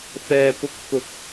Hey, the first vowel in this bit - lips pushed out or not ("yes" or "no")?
no